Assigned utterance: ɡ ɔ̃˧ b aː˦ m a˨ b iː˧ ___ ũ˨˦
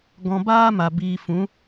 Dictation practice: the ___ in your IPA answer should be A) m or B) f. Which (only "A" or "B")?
B